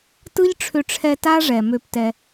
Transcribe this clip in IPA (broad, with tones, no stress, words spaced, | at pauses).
tɯ˦ʎʈ͡ʂʰʏ˧ʈ͡ʂʰɛ˧ ta˦ʐɛ˨ mø˧ptɛ˧